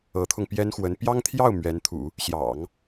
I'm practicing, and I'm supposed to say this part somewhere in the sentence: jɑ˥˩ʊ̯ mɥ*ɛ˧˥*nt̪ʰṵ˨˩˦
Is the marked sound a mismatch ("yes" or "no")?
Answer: no